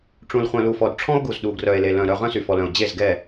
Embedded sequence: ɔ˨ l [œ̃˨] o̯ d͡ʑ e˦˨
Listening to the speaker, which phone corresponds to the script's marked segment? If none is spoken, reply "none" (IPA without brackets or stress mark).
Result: œ̃˨